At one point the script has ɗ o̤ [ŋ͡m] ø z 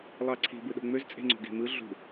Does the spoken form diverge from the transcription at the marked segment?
no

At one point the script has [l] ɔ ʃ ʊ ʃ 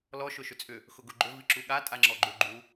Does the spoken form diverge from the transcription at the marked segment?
no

